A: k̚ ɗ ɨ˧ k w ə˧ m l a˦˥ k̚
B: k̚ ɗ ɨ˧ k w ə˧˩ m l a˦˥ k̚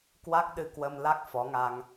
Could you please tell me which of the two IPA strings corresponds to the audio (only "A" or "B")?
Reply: A